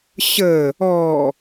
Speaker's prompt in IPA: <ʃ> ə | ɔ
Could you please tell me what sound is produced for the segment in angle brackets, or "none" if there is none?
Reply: ɕ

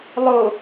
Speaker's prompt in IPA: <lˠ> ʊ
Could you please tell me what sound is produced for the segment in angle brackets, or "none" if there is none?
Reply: lˠ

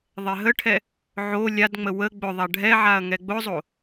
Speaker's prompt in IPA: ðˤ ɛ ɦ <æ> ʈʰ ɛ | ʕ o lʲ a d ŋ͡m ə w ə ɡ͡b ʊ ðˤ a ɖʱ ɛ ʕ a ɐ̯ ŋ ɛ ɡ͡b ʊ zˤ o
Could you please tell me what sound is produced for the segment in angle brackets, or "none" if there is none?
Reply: ə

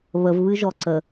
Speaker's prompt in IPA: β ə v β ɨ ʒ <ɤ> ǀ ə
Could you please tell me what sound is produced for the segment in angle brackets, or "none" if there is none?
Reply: ɔ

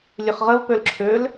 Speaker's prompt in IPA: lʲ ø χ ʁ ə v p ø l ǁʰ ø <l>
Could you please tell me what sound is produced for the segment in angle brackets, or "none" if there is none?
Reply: l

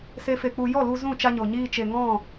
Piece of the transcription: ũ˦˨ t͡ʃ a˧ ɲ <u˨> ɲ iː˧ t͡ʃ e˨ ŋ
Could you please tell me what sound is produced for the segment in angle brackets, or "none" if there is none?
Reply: o˨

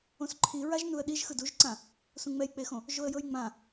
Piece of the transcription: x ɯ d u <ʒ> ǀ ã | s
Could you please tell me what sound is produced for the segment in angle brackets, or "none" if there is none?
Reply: ʒ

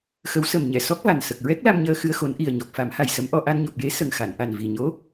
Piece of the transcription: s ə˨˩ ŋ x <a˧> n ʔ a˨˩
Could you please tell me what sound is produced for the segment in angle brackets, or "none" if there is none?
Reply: a˨˩˨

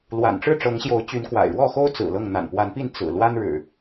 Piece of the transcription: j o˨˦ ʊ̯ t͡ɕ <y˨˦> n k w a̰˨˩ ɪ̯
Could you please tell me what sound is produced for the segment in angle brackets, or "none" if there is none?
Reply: y˨˦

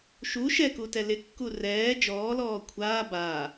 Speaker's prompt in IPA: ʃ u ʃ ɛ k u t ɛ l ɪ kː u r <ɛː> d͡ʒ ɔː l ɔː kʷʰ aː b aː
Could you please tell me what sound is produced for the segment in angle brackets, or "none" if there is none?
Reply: ɛː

